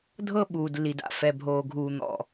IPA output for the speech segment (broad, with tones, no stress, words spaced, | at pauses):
dʱɤ˦ɓuː˨dlːi˨da̰˨ fɛ˨bʱoː˨ɡʱuː˨n̪ɔ̰˨